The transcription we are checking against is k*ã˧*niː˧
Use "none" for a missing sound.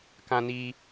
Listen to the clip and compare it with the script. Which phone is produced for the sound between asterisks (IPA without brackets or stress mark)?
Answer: ã˧